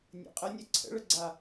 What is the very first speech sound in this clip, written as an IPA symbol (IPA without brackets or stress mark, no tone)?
nʲ